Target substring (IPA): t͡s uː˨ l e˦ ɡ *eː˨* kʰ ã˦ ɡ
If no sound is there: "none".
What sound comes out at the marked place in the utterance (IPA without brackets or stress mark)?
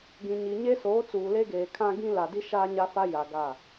eː˨